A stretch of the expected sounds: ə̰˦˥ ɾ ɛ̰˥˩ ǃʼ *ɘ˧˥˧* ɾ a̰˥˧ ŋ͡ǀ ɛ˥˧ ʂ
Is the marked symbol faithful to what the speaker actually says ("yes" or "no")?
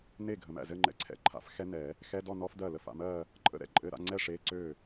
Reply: yes